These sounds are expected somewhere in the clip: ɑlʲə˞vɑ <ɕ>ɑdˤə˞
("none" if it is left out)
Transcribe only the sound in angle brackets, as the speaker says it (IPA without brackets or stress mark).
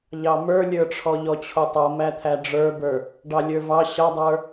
ɕ